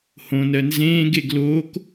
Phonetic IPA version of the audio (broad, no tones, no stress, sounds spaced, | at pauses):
h õ n ɜ n z ẽː ɡ e ɡ l oː k